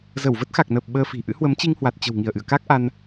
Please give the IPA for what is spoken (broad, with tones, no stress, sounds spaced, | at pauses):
z ə˧˩ w v ə˦˥ t̚ x a˨˩ k̚ n əː˨˩ p̚ ɓ əː˧ f i̤˨˩ ʔ ɨ̰˧˥ h w ə˨˦ m t͡ɕ i˧ ŋ h w a˨˩ t̚ t͡ɕ ə̤˨˩ w ŋ i˧˩ ə̯ ʔ ɨ̰˧˨ ə̯ k a˦˥ k̚ ʔ a˧ n